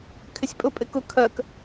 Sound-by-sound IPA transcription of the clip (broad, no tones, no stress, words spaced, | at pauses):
kʰɪsʲpʼʊ pʼɪkʊ kʰɜk